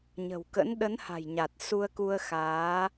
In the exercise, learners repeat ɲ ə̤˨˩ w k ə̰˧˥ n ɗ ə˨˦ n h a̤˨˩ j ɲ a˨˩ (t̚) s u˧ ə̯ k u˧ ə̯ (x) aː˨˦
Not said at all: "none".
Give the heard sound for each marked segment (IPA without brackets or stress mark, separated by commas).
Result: t̚, x